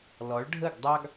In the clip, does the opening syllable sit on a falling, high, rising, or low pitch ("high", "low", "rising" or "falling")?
rising